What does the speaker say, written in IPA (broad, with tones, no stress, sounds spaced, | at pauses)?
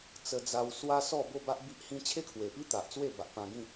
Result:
t͡s ə˦ d͡z a˦ w s w a˦ s ɔ˥˧ b o˥˧ b a˦ ʔ b i˦ ʔ h ĩ˦ t͡ɕʰ e˦ kʰ w e˨˩ p i˦ t̪ a˨ ʔ t͡s w e˥˧ b a˨ ʔ p ã˧ ɡ ĩ˥˧